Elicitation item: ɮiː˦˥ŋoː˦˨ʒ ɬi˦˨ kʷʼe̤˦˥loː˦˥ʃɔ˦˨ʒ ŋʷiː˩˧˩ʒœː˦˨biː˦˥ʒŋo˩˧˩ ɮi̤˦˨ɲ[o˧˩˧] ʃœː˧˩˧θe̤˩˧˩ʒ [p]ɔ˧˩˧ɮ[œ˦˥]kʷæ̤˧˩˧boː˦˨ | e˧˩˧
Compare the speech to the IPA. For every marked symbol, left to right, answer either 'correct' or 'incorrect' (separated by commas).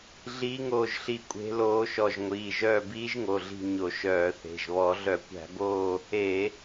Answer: correct, incorrect, incorrect